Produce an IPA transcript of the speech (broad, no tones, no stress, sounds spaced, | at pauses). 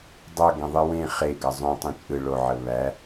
dˤ ʌ ɡ ẽ ðˤ ɨ w ẽ χ e ɡ ʌ zˤ õ tˤ ẽ t͡ʃʼ ɯ ɭ o ʕ ə β æ